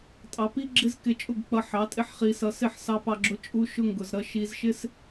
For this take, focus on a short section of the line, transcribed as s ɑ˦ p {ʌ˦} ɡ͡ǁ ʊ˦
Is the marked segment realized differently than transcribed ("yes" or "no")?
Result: yes